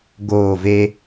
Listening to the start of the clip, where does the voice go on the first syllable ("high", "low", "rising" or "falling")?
falling